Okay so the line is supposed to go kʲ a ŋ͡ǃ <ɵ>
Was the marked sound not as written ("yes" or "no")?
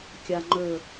no